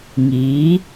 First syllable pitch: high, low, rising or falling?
rising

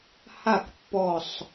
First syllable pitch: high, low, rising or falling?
falling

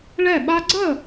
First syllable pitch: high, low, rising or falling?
falling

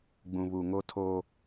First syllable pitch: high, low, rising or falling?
low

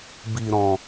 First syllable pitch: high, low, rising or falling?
low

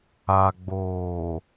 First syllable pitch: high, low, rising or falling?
low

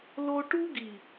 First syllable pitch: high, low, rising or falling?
high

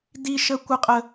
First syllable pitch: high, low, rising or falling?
high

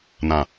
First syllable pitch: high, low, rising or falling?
low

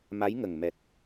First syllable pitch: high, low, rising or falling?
rising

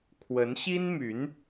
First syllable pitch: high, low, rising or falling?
rising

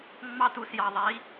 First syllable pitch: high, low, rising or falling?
high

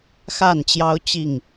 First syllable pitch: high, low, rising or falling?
falling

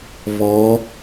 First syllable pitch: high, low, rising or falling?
rising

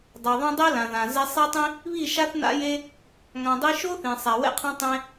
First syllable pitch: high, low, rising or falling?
low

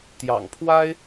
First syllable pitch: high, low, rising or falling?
low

